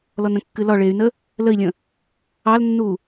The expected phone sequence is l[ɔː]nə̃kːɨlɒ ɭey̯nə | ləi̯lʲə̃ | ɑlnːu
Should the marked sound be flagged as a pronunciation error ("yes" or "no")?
yes